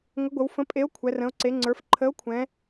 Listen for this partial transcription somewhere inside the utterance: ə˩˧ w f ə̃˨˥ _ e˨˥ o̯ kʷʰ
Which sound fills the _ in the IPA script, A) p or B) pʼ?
B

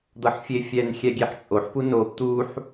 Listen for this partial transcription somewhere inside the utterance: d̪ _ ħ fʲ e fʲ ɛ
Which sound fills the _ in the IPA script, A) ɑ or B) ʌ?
B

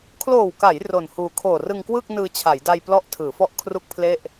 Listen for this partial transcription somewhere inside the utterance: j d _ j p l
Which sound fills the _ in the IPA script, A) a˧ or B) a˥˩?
A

